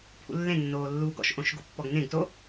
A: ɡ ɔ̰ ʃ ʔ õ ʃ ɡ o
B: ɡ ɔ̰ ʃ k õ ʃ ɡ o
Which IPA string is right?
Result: A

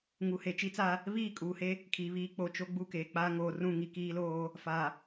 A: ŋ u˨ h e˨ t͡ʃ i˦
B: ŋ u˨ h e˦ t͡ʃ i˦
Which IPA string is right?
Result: A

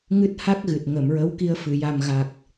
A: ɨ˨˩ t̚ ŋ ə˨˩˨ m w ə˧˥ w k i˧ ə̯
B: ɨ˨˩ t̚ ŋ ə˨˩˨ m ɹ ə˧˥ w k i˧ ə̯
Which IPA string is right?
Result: B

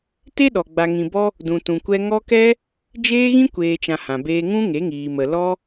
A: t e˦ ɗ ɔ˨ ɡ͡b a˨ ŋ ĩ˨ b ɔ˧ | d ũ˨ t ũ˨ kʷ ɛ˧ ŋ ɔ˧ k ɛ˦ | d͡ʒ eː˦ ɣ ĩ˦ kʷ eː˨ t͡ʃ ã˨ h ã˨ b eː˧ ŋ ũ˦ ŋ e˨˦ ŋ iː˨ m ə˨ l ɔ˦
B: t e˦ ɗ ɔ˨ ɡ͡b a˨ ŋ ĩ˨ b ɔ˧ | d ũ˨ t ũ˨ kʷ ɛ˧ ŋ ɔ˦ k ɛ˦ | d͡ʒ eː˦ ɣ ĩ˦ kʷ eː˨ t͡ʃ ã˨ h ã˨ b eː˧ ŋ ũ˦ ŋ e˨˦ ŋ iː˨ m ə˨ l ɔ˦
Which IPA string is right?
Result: B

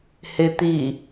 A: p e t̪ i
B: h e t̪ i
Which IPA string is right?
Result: B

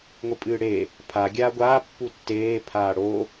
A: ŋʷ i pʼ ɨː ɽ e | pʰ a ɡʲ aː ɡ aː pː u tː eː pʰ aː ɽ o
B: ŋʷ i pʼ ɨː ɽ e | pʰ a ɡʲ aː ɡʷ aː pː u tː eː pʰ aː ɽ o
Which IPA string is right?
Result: B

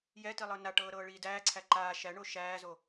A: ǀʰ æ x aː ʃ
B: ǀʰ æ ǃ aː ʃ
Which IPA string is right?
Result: B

